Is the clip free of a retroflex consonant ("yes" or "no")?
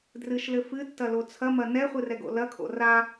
yes